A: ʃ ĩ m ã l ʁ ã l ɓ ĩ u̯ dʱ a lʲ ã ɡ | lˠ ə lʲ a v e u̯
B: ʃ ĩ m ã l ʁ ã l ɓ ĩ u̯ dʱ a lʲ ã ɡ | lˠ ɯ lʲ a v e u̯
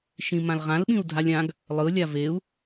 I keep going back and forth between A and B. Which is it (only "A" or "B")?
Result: B